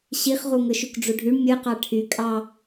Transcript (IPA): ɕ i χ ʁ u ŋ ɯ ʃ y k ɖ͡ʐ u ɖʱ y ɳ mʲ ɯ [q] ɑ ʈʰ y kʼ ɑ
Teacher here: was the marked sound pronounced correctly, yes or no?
yes